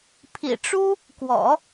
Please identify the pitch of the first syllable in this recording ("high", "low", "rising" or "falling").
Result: low